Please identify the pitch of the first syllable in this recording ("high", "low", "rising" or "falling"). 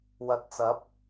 low